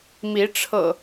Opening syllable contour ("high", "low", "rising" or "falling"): rising